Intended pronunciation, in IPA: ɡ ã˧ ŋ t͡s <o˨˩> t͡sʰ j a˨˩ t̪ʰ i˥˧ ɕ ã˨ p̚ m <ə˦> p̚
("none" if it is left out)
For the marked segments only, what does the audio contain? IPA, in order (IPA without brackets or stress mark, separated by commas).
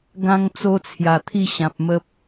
o˦, ə˦